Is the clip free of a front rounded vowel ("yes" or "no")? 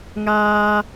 yes